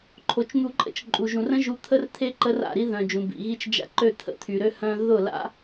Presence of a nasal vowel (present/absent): present